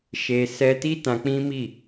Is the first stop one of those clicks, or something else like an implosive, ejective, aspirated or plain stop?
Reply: plain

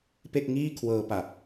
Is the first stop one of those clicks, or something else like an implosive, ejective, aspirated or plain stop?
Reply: plain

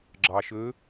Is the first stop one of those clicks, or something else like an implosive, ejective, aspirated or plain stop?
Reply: click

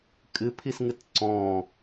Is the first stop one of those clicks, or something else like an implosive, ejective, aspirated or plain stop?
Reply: ejective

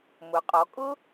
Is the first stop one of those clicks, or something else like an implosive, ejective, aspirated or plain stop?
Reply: ejective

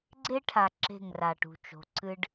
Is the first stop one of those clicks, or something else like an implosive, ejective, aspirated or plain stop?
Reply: click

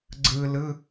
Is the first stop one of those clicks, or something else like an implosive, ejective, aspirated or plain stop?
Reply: click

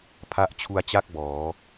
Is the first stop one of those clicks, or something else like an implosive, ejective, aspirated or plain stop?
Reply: aspirated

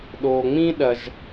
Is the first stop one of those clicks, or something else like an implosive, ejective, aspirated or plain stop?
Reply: implosive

